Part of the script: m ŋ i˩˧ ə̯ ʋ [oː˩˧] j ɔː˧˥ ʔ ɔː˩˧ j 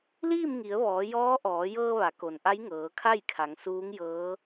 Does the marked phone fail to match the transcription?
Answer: yes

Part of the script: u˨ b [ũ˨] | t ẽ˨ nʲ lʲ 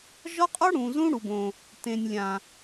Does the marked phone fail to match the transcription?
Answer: yes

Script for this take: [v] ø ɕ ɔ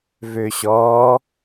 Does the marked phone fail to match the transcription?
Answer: no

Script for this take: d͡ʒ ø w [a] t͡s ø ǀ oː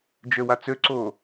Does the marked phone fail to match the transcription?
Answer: no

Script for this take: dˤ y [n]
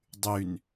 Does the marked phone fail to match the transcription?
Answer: no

